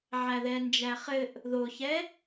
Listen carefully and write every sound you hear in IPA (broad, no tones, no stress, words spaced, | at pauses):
ʕæðɛnd͡ʒæχɘʔ | ðoçɛ